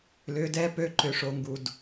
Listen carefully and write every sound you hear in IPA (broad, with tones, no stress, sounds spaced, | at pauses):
l ʏ˨˦ d ɛ˦ p ø˦ ǃ ø˧ ʂ o˧ ŋ ɡ u˧ d